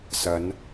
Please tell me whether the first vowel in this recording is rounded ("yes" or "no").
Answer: no